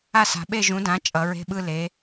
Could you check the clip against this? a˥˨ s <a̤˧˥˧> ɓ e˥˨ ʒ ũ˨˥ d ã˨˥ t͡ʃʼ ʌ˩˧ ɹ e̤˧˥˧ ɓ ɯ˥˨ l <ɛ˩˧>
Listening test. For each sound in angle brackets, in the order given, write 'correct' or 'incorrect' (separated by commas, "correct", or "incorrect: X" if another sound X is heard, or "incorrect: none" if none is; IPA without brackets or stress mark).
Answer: incorrect: a̤˩˧, incorrect: e˩˧